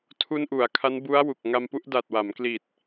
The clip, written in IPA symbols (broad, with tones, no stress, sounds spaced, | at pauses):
tʰ u˧ n ʔ u˩˦ a̯ kʰ a˦˥ n b u˦˥ a̯ w u˨˩ k̚ ŋ a˧ m p u˥˩ ʔ d a˨˩ t̚ w a˩˦ m k l i˨˩ t̚